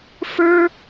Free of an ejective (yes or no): yes